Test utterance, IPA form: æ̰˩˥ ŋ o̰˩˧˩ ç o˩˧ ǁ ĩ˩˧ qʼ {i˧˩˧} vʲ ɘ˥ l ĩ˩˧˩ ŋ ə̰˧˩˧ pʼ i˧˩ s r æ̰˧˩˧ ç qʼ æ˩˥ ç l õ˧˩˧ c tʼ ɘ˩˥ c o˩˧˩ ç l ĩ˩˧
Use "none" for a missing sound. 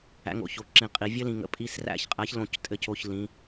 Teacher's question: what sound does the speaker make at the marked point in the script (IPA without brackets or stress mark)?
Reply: i˩˧